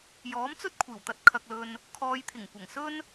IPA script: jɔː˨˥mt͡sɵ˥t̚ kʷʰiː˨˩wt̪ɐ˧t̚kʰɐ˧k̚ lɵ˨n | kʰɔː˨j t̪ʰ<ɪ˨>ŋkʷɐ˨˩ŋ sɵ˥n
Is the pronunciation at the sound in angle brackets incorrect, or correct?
incorrect